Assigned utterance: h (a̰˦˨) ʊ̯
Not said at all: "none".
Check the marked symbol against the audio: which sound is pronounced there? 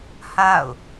a̰˦˨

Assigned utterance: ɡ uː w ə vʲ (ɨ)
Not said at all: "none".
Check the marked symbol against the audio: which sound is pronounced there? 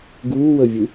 ɨ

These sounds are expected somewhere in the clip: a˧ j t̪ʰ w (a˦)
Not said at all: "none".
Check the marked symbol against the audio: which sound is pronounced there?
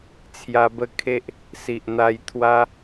a˦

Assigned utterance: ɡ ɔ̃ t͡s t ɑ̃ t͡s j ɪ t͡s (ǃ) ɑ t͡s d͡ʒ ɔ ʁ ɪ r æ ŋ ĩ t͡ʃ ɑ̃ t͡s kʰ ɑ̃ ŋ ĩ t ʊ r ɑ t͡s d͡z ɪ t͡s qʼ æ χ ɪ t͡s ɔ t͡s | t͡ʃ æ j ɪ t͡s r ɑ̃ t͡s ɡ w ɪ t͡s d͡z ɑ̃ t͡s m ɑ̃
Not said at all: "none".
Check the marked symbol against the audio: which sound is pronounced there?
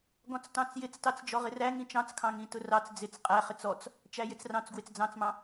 t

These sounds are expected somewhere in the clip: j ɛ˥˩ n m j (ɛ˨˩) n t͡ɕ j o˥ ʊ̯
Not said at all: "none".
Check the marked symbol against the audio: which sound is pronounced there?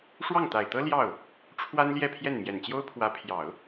ɛ˨˩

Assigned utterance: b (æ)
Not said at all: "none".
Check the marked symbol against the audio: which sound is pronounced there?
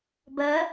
ɜ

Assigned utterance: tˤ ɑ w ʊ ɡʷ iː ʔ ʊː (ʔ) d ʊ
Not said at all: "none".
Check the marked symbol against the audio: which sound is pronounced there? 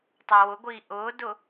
none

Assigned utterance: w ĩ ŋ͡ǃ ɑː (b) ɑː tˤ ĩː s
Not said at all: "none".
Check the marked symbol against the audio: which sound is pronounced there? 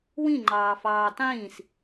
f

